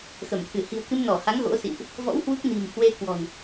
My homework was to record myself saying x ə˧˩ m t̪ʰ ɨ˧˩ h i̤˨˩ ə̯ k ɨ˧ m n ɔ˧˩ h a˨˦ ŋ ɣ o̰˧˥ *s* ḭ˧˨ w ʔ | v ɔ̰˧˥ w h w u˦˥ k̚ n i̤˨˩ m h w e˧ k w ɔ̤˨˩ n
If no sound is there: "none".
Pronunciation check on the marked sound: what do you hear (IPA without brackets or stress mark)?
s